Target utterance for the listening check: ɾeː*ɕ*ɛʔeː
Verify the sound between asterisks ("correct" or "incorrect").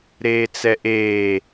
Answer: incorrect